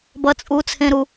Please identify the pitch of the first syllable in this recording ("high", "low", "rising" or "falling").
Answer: high